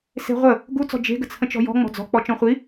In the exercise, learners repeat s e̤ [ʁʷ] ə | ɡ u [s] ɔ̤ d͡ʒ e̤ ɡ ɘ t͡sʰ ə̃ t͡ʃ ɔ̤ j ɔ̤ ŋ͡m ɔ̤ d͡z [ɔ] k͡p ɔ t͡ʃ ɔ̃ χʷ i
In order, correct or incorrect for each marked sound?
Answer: correct, incorrect: t͡s, incorrect: ɔ̤

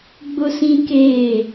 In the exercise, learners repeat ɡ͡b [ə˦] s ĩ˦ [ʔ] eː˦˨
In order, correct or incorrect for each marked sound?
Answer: incorrect: ʊ˦, incorrect: k

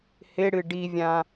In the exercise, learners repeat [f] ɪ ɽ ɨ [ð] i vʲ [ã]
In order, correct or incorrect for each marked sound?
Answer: incorrect: h, incorrect: ɖ, correct

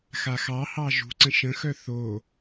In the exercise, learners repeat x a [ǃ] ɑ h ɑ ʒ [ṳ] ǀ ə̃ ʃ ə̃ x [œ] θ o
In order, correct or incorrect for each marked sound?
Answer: incorrect: x, correct, correct

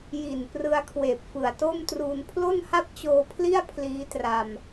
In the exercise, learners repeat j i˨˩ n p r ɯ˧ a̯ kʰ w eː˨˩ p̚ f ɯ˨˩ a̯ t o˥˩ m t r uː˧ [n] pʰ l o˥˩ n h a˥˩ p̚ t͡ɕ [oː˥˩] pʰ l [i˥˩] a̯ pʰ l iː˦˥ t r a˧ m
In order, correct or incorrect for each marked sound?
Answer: correct, incorrect: oː˧, correct

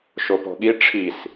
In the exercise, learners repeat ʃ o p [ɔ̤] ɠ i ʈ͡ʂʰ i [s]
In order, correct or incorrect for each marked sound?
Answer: correct, correct

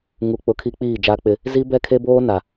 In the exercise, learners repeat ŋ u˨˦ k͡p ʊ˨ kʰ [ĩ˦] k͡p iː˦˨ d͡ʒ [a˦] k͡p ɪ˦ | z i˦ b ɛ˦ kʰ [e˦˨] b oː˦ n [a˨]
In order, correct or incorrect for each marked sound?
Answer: incorrect: i˦, correct, incorrect: e˦, correct

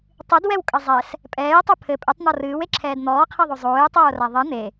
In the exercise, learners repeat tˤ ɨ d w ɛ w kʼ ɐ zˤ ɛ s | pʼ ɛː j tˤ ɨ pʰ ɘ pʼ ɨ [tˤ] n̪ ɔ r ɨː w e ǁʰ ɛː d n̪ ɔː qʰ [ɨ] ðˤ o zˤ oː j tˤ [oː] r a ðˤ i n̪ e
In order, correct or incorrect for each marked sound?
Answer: correct, incorrect: e, correct

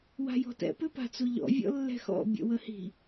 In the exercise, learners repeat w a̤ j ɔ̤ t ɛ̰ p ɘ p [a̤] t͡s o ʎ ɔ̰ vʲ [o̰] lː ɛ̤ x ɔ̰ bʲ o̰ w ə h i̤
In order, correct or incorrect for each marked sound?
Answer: correct, incorrect: ɔ̰

